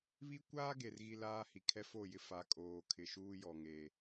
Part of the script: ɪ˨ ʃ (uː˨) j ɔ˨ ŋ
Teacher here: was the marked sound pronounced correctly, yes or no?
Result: no